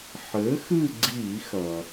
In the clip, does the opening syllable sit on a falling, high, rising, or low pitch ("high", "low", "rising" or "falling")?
rising